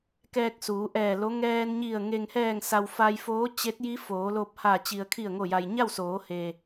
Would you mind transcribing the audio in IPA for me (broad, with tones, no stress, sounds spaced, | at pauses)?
k ɛː˧ k̚ s uː˩˧ ʔ ɛː˧˩ l o˧˥ ŋ ɛː˧ n ɲ i˧˩ ə̯ ŋ e˩ ŋ h ɛː˧˩ ŋ s a˩ w f a˧ j f oː˧˥ t͡ɕ e˧˥ t̚ j i˧˥ f oː˩˧ l o˧ p̚ h a˧˩ t͡ɕ i˩ ə̯ kʰ i˧˩ ə̯ ŋ o˧˩ j a˩ j ɲ a˥˨ w s oː˩˧ h e˩